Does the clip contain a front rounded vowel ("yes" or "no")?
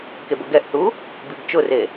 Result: no